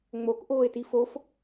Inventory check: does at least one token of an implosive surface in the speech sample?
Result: no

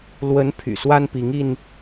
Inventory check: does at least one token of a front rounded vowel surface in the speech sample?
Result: yes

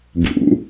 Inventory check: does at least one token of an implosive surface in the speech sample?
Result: no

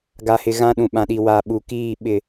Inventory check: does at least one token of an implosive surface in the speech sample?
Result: yes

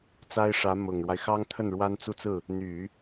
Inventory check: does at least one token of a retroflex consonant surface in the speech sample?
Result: yes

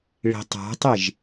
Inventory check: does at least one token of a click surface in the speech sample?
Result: no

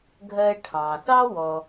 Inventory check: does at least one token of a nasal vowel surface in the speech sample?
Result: yes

